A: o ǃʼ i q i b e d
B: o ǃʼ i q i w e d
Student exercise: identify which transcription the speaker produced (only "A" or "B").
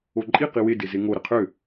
B